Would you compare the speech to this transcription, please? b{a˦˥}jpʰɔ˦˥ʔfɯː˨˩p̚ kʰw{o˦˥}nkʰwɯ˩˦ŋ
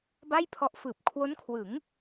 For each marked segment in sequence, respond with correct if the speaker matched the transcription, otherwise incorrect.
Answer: incorrect, correct

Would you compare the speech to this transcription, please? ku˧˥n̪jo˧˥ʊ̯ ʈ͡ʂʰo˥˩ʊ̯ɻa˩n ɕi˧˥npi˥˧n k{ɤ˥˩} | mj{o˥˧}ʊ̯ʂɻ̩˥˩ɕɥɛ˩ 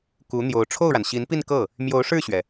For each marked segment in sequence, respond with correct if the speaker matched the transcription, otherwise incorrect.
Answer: correct, incorrect

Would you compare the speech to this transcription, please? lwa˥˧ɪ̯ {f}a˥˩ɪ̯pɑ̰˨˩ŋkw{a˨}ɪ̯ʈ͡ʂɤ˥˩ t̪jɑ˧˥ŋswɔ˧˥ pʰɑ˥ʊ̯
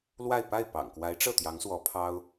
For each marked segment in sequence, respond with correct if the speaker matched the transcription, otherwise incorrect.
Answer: incorrect, incorrect

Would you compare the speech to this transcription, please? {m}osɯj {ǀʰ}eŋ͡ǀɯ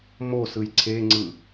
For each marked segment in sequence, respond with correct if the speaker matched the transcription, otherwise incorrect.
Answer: correct, correct

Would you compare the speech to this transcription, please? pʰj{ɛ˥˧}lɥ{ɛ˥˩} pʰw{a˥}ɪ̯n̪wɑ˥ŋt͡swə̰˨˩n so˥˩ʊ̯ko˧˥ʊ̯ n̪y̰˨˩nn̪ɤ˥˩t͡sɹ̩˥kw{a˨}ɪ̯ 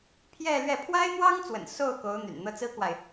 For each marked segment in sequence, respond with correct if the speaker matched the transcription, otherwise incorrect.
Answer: correct, correct, correct, correct

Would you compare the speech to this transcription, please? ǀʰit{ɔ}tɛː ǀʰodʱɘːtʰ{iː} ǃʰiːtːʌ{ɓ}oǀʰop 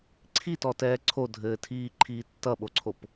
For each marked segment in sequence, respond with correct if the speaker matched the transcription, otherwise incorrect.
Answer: correct, correct, correct

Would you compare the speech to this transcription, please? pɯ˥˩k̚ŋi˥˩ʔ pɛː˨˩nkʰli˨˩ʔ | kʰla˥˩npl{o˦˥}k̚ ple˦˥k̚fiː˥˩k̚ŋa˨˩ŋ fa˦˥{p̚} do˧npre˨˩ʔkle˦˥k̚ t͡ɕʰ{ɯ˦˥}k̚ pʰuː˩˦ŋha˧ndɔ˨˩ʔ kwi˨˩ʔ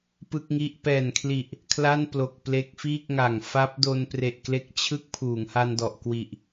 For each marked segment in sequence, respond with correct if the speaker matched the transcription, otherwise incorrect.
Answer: incorrect, correct, correct

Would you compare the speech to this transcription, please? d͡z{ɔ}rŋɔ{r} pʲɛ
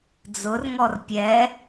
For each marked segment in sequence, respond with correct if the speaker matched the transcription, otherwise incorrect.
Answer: incorrect, correct

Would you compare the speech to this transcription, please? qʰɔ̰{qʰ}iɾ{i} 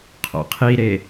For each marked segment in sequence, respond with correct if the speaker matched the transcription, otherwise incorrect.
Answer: correct, incorrect

